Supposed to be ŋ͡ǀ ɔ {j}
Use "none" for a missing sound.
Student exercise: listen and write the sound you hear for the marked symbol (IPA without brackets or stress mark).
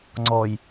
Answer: j